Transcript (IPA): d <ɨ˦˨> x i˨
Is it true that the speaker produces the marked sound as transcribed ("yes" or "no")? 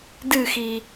yes